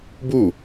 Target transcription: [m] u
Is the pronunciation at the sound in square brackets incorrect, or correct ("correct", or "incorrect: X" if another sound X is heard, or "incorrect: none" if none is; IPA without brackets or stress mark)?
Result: incorrect: b